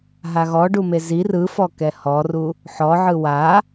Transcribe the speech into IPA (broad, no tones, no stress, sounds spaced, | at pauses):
ɦ a ɣ ɔ ɖ u m e z i r ɯ f ɔ k ɛ h ɔ r u | ħ ɔ ʕ ɯ w a